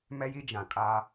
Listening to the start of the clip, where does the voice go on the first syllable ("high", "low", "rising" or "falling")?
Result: high